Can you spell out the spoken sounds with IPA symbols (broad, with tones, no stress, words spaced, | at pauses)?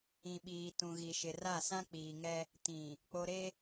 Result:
ĩ˨ɓiː˨ tũ˨ɣi˨ʃɪ˨ra˦˨ sã˦k͡piː˨ŋɛ˦ | tĩ˨ | k͡po˨ɾe˦